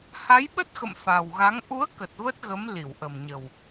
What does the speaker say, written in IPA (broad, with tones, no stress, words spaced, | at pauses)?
ha˨˦jɓə˦˥t̚xə̰˧˨m fa˨˩wɣa˨˦ŋ ʔu˨˦ə̯kə˨˩t̚ və˦˥t̚ɣə˨˦m li˧˩wʔə˨˩mɲə˨˩w